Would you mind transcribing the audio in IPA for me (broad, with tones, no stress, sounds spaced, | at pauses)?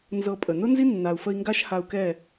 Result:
n z ɤ˧ pʼ ə˨ n ʊ˦ n z i˦ nː a˨ u̯ f ə˧ i̯ ŋ ɡ a˦ ʃ h a˧ u̯ k ɛ˦˨